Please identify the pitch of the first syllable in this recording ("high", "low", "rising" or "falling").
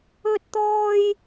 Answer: high